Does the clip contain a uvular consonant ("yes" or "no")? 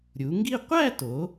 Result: yes